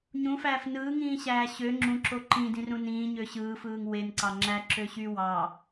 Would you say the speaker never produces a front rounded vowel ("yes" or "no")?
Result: no